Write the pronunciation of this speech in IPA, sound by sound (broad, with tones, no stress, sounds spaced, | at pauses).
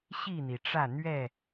ɕ i˥˨ n̪ i˩ ʈ͡ʂ ä˥˨ n̪ ɥ ɛ˥˨